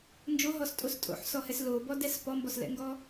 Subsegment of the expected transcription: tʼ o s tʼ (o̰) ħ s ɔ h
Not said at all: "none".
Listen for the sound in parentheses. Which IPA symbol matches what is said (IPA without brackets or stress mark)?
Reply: o̰